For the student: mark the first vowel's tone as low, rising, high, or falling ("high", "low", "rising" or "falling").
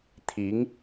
rising